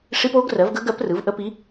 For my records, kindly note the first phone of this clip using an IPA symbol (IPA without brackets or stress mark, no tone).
ʂ